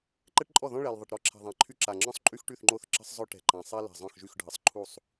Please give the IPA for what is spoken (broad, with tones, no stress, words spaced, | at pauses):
ǃɛ˥ʈǃʼɔ˥˩ðɔ̃˥ ɭɛ˨˩lðˤə˨˩ʈɾɔ˥ ǁʰɛ̤˨˩ðˤã˨˩ ǃʰy˥ǁa˨˩ ŋ͡ǁɔ̃˥sˤǃʼy˥xʈy˥˩θ ŋ͡ǃo˥˩θ ǁə̤˥sˤzˤœ˥ʈɛ̤˨˩ǃã˨˩ sˤɛ˥ lɛ̤˨˩zˤœ̃˥˩xʒy˥˩xɖʱə˨˩sˤ ǃʰu˥˩sˤ